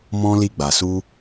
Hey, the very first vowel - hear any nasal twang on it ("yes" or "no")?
yes